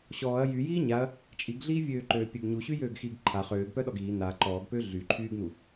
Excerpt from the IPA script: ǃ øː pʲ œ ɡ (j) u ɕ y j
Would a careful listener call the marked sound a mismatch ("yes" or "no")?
yes